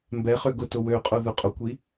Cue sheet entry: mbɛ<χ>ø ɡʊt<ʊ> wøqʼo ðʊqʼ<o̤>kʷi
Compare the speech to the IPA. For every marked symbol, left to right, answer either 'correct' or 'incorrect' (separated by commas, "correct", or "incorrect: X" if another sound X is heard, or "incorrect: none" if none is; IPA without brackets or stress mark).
correct, correct, incorrect: o